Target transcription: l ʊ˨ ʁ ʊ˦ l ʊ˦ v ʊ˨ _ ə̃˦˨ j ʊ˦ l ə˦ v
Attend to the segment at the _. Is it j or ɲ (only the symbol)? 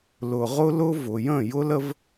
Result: j